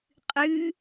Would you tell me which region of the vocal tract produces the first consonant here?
uvula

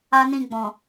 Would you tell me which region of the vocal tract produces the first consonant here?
tongue tip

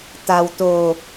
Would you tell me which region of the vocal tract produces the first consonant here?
tongue tip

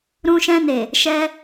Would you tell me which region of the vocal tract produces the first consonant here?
tongue tip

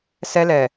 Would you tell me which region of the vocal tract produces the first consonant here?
tongue tip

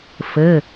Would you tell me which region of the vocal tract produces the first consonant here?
lips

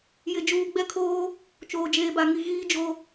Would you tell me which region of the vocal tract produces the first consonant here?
palate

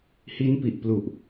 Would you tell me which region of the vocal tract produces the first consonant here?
throat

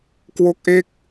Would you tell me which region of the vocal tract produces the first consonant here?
velum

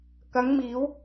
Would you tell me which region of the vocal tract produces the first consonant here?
velum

